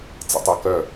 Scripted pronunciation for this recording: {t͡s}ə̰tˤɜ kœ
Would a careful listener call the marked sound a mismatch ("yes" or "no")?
no